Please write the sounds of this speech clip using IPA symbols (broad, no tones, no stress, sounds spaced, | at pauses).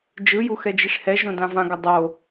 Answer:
d͡ʒ ɯ j u x ɛ d͡ʒ i ʂ h ɛ ʒ õ d ã v ã ɡ ʌ dˤ o